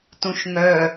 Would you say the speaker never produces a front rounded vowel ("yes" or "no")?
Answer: no